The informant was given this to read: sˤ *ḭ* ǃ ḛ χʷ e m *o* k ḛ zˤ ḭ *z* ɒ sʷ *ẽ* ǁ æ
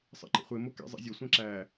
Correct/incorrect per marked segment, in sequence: incorrect: ḛ, correct, incorrect: zʲ, correct

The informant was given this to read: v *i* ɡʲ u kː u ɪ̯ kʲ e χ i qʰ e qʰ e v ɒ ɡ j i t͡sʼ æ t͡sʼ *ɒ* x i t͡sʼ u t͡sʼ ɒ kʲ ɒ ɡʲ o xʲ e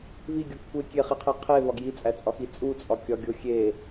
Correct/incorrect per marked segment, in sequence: correct, correct

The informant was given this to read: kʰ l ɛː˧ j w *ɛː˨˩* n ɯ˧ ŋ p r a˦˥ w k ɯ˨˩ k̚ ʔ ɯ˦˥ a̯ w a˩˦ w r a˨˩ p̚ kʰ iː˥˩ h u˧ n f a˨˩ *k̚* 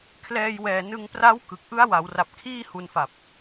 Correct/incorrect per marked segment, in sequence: correct, incorrect: p̚

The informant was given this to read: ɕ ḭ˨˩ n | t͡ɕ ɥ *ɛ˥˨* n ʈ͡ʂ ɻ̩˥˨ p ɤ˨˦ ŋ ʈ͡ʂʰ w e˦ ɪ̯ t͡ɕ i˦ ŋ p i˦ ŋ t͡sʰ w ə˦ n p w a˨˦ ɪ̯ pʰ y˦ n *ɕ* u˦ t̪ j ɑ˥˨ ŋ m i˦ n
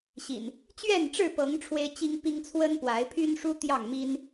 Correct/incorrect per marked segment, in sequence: correct, incorrect: ʂ

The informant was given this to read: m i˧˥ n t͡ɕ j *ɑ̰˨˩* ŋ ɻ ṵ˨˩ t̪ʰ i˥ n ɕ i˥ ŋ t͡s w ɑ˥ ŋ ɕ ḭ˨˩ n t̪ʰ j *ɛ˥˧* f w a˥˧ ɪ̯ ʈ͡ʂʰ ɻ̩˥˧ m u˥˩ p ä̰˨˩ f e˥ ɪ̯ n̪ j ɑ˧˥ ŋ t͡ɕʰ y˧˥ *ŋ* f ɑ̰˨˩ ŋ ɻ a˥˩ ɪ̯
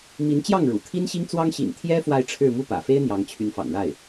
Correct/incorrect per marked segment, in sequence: incorrect: ɑ˥˩, incorrect: ɛ˥, incorrect: n

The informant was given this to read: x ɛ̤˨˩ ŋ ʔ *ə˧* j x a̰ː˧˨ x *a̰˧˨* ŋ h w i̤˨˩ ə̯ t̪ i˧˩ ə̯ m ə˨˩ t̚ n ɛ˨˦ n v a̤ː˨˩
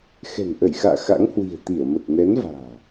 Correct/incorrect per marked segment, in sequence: incorrect: ə˧˩, incorrect: a̰˧˥

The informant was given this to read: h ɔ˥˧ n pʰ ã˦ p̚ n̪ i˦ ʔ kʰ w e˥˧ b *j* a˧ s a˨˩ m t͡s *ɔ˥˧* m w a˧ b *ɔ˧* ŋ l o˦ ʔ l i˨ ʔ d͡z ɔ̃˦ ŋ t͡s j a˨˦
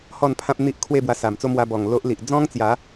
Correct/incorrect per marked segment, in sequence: incorrect: w, incorrect: o˥˧, incorrect: ɔ˨˩

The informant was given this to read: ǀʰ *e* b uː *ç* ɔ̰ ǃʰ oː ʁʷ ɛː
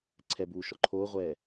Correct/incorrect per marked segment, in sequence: incorrect: ɛ, incorrect: ʃ

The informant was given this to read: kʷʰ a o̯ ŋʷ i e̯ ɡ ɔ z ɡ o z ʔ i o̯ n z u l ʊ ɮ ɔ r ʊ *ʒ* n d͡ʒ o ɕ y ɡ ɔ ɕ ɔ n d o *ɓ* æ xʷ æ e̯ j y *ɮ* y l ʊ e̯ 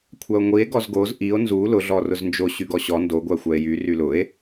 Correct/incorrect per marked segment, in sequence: incorrect: z, incorrect: ɡʷ, incorrect: r

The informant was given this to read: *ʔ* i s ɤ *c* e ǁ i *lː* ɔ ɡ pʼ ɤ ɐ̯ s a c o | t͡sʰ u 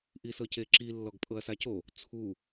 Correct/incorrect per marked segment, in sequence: correct, correct, correct

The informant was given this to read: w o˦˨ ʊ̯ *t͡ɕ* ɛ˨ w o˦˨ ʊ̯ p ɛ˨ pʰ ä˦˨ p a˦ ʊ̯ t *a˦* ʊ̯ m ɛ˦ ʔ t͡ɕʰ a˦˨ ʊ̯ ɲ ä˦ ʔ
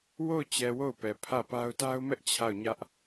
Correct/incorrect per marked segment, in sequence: correct, correct

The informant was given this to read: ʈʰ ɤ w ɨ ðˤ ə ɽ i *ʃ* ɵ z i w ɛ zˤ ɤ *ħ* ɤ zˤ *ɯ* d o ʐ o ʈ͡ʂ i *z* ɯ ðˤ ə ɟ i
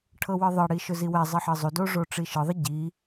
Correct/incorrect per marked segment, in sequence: correct, correct, incorrect: u, incorrect: ʃ

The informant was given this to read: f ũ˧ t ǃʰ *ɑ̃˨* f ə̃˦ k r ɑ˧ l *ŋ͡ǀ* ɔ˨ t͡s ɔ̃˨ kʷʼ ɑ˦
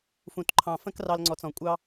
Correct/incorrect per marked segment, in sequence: correct, correct

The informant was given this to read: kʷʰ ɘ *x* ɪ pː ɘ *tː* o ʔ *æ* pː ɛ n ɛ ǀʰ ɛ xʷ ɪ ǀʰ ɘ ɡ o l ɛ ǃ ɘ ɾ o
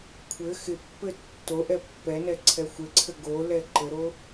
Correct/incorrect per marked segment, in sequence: correct, correct, incorrect: ɛ

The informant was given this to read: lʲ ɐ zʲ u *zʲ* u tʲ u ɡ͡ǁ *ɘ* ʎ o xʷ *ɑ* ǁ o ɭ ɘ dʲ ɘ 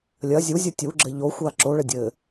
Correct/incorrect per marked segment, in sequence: correct, correct, incorrect: a

